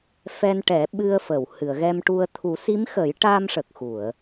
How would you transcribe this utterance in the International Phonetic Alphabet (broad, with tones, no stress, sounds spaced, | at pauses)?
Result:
f ɛ˧ n ʈ ɛ˨˩˦ ɓ ɨ˧ ə̯ f ə˨˩˨ w h ɨ˨˩˨ ə̯ ɣ ɛ˧ m ʈ u˧ ə̯ t̪ʰ u˨˩˦ s i˧˥ m x ə˨˩˦ j ʈ a˧ m ʂ ə˨˩ k̚ x u˨˩˨ ə̯